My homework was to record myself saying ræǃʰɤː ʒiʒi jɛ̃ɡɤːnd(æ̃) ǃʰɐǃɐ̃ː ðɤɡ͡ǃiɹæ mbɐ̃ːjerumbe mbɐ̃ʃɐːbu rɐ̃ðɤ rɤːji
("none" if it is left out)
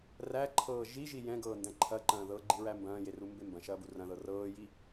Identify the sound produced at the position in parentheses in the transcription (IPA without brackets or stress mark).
æ̃